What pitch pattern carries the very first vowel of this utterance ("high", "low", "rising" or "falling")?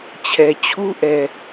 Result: low